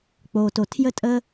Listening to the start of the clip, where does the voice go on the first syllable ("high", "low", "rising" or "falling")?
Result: low